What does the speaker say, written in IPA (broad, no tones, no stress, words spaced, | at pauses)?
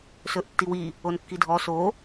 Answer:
sɵʔtːiwi | onkːidʱɔ so